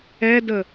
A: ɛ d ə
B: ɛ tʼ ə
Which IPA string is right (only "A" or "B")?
A